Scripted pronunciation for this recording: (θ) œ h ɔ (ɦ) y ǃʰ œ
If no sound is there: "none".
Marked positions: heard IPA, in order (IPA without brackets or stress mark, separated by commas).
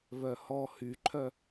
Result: β, h